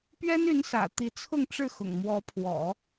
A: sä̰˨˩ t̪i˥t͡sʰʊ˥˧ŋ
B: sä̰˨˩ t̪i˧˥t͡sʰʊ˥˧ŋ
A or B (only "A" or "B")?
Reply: B